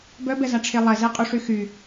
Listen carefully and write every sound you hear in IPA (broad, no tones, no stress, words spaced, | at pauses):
bœbɛzaʈ͡ʂʰe lˠɛzeqʼuʂy xy